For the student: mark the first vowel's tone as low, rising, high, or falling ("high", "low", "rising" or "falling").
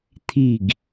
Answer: falling